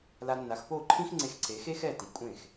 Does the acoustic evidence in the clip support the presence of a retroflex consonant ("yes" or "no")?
no